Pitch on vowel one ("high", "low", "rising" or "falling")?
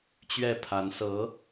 falling